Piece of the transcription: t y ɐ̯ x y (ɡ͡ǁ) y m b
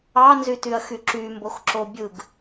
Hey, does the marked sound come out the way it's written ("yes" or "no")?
no